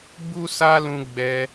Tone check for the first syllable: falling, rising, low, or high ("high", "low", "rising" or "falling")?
high